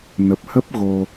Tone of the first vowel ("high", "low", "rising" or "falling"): low